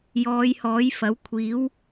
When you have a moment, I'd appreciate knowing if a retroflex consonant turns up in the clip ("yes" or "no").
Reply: no